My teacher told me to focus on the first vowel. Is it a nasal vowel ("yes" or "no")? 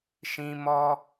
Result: yes